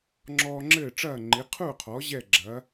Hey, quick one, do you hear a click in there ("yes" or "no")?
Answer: yes